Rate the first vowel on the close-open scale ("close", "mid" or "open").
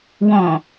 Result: mid